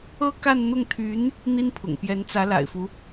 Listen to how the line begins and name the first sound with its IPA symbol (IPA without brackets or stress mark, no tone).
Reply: ɤ